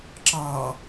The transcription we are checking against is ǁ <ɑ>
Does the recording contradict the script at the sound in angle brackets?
no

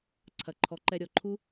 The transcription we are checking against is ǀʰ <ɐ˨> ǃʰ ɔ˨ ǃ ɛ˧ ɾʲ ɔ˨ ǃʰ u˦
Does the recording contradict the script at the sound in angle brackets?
no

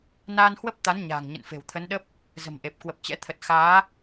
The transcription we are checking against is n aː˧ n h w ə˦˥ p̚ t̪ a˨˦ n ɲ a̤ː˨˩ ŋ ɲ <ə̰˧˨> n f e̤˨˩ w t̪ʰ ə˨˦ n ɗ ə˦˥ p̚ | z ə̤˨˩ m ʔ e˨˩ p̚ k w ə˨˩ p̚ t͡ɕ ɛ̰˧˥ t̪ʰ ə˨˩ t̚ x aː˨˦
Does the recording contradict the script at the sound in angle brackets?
no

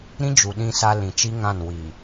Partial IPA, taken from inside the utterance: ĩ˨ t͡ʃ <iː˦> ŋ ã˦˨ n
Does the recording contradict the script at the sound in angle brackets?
yes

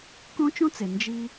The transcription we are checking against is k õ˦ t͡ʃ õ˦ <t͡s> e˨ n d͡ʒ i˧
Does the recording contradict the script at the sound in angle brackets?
no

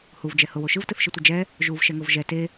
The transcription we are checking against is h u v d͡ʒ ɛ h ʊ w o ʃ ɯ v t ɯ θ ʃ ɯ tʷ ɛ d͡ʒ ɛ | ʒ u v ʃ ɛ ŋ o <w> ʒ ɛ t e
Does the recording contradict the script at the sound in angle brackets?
yes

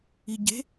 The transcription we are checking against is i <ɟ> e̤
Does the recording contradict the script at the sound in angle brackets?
no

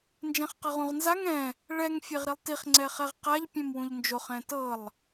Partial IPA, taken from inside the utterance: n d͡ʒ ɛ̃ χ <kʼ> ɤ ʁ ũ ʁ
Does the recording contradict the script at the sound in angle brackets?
yes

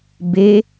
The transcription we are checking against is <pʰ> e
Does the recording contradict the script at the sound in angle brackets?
yes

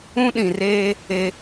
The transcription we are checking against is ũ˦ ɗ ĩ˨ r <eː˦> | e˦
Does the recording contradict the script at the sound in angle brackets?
no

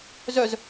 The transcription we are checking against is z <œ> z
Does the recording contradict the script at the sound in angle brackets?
no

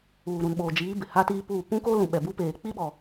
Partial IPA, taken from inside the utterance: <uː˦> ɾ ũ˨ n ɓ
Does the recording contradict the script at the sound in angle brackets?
yes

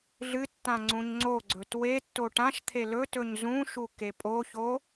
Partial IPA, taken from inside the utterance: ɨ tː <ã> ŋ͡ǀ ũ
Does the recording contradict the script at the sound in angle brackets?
no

